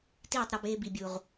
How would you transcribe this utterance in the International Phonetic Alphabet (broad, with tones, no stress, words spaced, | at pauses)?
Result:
tiː˦˨tˤɾɒ˧beː˧ bi˨bʲu˨ʁ